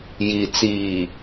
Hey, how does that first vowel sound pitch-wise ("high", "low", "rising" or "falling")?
low